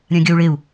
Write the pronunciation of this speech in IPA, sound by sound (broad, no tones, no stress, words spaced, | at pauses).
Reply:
ɾʲãɡʲʌu̯ɭeu̯